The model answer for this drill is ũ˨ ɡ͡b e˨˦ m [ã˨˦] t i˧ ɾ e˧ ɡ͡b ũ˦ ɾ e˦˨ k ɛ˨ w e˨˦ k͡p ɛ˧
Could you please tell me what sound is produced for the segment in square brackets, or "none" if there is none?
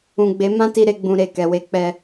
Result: ã˦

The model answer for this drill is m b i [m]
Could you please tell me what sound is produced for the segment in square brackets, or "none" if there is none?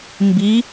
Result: none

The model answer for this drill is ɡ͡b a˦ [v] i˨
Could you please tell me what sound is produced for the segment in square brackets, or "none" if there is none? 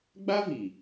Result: v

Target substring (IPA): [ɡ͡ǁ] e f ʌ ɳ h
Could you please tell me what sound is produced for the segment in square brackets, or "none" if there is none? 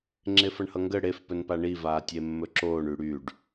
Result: ŋ͡ǁ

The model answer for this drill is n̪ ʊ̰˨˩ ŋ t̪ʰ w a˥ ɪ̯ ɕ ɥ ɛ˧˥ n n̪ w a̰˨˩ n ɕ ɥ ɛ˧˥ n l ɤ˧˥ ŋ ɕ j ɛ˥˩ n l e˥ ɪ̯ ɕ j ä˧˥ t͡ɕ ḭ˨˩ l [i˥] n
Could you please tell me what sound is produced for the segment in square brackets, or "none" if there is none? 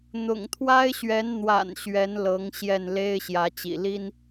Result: i˥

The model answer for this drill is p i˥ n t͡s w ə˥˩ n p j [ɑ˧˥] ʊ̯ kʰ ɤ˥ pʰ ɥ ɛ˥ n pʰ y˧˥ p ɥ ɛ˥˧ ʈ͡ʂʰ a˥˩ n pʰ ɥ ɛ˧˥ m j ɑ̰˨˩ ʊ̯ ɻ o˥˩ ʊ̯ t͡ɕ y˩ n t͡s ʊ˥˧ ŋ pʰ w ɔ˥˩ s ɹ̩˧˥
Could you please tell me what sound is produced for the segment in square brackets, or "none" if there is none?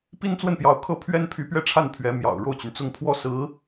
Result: ɑ˧˥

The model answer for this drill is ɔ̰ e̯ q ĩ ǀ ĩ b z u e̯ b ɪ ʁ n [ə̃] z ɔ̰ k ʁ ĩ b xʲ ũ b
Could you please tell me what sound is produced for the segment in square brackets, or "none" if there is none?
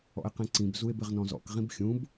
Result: ɔ̃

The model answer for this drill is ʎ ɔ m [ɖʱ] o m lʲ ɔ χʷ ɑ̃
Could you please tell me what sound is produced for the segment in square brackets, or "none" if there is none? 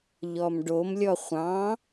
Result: ɖ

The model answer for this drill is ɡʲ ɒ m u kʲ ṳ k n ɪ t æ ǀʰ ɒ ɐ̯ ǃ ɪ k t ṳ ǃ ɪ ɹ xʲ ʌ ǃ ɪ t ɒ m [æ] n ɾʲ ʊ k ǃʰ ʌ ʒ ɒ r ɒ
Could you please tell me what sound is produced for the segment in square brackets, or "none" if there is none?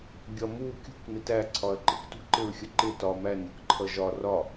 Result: æ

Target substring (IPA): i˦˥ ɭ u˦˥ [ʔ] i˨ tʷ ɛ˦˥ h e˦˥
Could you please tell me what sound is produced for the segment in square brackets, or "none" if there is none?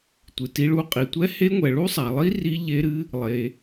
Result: qʼ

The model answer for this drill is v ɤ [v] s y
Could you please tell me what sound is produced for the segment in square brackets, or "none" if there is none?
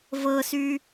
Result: none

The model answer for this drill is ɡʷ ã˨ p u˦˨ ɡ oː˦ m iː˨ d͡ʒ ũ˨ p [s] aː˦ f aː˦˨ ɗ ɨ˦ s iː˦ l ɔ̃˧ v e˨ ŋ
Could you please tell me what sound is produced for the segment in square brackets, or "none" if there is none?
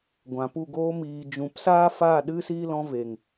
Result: s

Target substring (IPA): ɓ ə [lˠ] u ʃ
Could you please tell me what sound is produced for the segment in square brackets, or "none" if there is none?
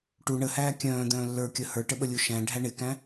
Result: lʲ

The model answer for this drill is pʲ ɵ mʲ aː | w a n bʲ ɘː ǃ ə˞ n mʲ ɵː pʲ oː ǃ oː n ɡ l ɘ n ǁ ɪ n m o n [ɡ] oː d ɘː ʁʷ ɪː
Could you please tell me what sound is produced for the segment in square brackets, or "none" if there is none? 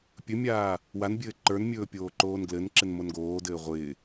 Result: ɡ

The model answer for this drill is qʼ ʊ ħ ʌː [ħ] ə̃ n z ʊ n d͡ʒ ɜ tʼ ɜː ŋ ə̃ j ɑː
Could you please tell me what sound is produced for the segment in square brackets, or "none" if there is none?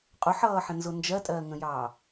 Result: ħ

